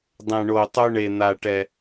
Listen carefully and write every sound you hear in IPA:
dˤ ɛ̃˨˩ ɳ o˨˩ tˤ o˦ ɳ e˨˩ n̪ a˨˩ ʈ ɛ˨˩

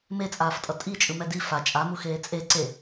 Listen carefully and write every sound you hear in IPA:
m e t͡sʼ aː f tʼ ʌ tʼ i t͡ʃʼ ɯ m ɛ d i f a t͡ʃʼ a m u x eː t͡sʼ e ǀ e

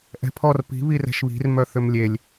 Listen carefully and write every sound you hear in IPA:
ʔ ɛ̤ pʰ ɔ r p i̤ β i r ɛ̤ ʃ β i̤ r m œ θ ʏ m lʲ e lʲ

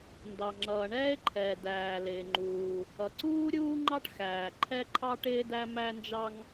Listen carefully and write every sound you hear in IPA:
n d ɑ˩ ŋ͡ǁ ʌː˩ ɳ ɛː˥ e̯ ǃʰ ɛː˩ d æː˩ l ɪː˩ ŋ͡ǃ uː˩ | ʌ˩ ǀ uː˥ ɾʲ uː˥ ŋ͡ǃ ɑ˥ ʈ x æː˩ ǃʰ ɛ˥ ǃʰ ɑ˥ ʈ ɪː˥ d æ˥ m æ˥ n d͡ʒ ɑ˥ ŋ

